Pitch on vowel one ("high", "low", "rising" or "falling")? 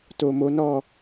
low